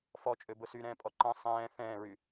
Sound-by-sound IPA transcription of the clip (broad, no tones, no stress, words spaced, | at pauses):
fɔt͡ʃʼøbʊ syɾɛ̃ːpʼɔ ǃɐ̃ sˤɛ̃ː θɛ̃ːɹy